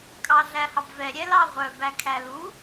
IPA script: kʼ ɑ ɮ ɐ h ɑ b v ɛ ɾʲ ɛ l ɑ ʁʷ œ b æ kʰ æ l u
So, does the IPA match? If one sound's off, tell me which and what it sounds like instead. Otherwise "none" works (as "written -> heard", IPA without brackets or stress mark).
ɐ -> æ